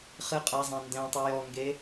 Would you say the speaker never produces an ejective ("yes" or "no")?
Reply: no